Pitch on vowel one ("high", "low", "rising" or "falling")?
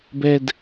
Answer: low